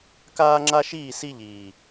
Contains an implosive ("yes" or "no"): no